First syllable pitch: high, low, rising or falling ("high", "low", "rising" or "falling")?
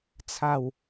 falling